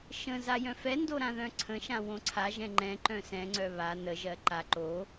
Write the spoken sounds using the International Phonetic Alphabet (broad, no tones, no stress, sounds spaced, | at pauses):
ʃ ə̃ z a j œ̃ f ɛ n d o ɾ ã ð œ̃ ǀʰ ə̃ ʃ ã w õ ǀʰ a ʒ ɛ̃ ŋ͡ǃ ɛ̃ ǃ œ̃ s ɛ̃ ŋ͡ǀ œ β a n ə ʒ ɜ ǃ a ǃ o